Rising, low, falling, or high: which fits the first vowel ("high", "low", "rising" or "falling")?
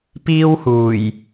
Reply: high